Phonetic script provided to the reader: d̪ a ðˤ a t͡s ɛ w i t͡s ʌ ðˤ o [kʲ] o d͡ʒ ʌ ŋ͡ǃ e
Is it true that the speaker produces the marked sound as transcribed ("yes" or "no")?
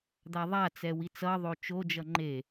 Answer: no